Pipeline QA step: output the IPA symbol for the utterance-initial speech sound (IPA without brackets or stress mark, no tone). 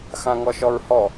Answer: x